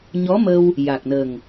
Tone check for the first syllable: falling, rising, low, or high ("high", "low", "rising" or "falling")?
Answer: rising